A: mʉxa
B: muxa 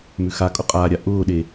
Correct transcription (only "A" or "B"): A